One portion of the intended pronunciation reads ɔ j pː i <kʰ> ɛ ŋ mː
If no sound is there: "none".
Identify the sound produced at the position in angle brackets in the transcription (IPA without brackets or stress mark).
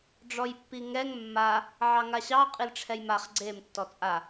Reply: ŋ